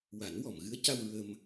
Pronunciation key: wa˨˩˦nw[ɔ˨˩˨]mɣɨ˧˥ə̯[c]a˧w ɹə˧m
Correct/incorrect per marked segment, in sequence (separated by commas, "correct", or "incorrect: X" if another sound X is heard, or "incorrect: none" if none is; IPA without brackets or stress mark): correct, correct